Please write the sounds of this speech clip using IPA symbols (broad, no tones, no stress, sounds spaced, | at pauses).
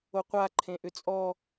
o qʷ a ǃʰ ẽ ʔ ʏ t͡sʼ ɔ